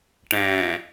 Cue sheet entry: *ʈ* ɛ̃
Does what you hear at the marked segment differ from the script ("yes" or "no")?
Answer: no